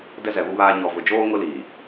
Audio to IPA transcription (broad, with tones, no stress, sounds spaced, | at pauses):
d ɛ˦ z ɛ˨ β u˦ β aː˦ ɲ ɔ˨ v ʊ˨ d͡ʒ oː˦ ŋ ʊ˦ l iː˨